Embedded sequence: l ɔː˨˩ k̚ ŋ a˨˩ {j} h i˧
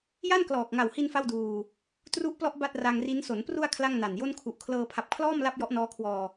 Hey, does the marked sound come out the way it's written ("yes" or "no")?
no